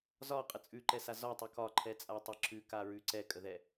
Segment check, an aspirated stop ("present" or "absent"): present